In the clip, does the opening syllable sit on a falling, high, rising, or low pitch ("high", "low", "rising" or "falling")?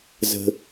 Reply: low